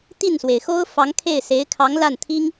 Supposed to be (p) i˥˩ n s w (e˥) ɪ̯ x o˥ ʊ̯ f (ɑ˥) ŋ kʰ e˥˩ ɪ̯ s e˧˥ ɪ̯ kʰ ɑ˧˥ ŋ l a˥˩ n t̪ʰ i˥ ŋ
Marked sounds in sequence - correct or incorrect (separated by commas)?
incorrect, incorrect, incorrect